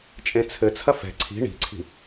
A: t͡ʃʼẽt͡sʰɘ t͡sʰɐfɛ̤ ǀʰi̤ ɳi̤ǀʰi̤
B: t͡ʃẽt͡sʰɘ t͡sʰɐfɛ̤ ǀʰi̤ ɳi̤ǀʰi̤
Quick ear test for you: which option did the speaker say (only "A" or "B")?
A